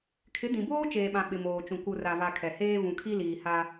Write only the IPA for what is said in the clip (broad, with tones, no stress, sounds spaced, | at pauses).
kʰ ɪ˨˦ d ĩ˨ b oː˦ t͡ʃ eː˨ ɓ ã˨ ɓ ɪ˨ m oː˨ t͡ʃ ũ˨ k u˨ r a˨ v a˨ kʰ ɛ˨ h eː˦ v ũ˨ kʰ i˦ l iː˨ h a˦